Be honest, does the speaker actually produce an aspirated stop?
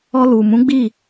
no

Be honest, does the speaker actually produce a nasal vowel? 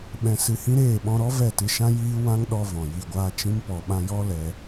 yes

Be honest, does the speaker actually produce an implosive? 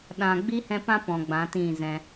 yes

